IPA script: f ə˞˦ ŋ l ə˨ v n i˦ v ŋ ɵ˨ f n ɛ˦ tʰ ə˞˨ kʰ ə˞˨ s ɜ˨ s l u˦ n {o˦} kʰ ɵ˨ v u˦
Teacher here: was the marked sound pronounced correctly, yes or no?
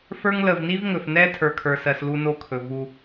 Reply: yes